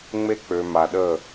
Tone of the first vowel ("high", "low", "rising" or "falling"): high